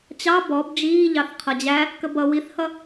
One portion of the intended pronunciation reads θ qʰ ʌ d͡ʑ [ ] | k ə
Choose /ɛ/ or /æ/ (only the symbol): æ